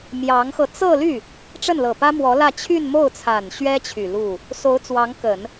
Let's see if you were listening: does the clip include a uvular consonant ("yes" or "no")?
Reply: no